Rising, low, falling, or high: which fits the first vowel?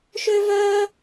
high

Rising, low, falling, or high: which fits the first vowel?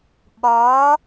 rising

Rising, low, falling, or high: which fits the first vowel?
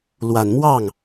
low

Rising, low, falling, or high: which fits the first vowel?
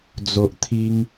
low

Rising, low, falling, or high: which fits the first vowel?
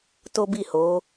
high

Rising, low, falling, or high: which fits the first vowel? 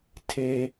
high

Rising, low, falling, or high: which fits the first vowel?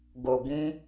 low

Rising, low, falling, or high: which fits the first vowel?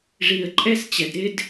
low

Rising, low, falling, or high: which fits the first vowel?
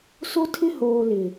high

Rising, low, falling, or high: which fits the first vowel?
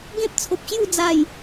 high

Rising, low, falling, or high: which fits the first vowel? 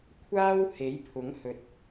high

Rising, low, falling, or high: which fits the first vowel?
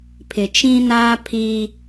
low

